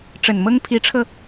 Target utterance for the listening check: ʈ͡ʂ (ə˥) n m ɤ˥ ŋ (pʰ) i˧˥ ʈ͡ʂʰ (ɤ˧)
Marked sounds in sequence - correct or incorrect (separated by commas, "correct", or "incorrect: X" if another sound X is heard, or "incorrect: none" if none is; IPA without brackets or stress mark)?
incorrect: ə˨˩, correct, correct